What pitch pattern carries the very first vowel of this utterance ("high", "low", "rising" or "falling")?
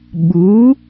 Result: rising